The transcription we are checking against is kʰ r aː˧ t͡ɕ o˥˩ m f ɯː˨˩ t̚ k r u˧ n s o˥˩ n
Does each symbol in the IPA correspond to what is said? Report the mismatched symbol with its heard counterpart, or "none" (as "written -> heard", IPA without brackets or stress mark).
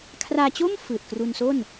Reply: none